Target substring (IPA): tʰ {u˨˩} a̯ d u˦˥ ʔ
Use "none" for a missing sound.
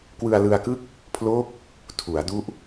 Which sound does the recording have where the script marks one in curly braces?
u˩˦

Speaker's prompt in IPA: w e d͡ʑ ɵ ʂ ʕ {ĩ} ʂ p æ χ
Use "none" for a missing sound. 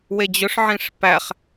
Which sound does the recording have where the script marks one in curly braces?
ĩ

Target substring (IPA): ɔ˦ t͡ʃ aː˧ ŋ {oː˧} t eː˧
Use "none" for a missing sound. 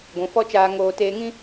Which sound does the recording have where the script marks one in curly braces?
oː˧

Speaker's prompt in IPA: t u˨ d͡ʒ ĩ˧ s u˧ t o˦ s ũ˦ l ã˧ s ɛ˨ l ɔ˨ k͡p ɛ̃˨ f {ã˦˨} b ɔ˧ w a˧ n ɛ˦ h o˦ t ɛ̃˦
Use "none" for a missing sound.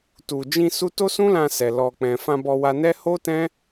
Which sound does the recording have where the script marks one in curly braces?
ã˧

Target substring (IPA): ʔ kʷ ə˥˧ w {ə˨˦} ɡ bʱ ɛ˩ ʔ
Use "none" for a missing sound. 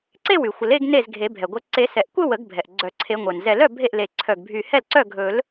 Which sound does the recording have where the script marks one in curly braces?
ə˨˩˦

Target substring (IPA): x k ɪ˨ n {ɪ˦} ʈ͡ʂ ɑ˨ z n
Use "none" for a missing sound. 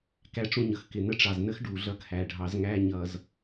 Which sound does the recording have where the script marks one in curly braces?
ə˦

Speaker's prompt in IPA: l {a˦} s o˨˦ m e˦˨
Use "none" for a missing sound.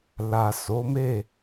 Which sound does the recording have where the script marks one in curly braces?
a˨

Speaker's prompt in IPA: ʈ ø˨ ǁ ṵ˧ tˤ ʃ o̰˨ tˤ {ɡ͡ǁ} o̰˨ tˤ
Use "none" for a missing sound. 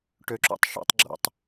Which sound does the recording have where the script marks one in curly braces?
ɡ͡ǁ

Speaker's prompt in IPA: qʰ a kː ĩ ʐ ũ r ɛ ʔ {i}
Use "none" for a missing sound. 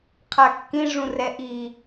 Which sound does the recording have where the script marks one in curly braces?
i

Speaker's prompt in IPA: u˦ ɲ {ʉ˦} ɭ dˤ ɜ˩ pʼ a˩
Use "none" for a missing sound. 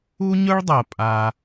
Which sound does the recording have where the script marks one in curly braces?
ʊ˦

